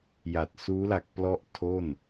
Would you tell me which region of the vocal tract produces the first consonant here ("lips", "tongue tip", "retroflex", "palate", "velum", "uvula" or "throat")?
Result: palate